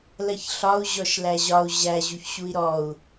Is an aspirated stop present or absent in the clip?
absent